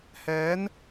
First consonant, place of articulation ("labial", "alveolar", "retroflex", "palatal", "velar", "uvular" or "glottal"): glottal